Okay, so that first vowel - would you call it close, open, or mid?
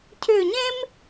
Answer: close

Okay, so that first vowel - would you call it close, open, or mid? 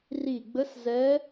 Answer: close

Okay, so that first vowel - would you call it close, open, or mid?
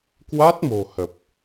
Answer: open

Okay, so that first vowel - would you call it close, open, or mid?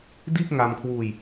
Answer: close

